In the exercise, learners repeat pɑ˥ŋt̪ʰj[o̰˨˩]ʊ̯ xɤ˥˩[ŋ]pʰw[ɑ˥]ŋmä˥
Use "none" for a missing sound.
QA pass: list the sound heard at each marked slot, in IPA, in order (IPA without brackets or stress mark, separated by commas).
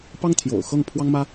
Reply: o̰˨˩, ŋ, ɑ˥